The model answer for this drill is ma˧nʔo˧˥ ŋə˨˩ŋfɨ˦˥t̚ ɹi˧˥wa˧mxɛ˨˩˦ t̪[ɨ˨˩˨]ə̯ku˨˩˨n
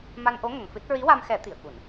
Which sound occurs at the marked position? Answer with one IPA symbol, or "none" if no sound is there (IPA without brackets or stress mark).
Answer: i˨˩˨